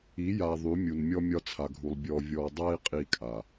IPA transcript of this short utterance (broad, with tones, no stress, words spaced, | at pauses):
i˨˦ja˨ ðˤy˨˦mʲu˨nmʲɔ˦ mʲɒ˦t͡sʰa˨ɡʱu˨lˠ bʲɔ˨vʲɔ˨dˤa˦i̯ qʼi˦kʼa˨